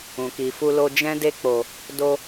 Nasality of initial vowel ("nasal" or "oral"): nasal